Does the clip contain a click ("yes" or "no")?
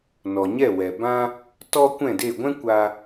no